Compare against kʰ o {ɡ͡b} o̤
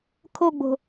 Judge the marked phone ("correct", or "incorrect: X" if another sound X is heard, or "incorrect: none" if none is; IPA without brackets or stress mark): correct